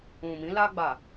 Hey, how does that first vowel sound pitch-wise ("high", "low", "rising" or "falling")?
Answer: low